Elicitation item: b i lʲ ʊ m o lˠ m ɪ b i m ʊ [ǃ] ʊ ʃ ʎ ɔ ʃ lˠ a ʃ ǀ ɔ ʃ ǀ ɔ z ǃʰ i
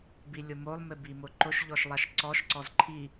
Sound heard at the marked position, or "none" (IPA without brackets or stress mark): ǃ